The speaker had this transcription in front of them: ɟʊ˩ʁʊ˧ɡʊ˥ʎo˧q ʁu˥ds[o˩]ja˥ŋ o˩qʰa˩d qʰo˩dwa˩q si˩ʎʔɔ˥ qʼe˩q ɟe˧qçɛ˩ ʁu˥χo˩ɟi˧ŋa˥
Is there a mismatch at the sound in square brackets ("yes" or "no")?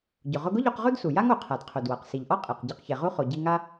yes